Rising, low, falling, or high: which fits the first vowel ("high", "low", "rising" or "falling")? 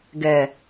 low